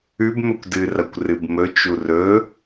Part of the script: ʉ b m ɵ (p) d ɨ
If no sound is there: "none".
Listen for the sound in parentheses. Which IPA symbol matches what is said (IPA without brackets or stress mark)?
kʷ